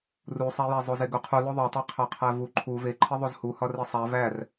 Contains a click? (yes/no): yes